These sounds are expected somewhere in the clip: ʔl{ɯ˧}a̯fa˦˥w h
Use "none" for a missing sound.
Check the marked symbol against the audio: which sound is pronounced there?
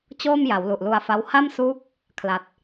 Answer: u˧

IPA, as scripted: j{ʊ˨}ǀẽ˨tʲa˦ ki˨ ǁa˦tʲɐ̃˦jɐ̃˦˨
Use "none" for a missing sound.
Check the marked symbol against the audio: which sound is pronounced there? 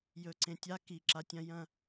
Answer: ɵ˨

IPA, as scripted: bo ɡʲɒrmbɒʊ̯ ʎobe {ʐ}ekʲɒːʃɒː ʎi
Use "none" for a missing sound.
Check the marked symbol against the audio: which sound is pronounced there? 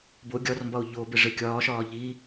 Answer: ʐ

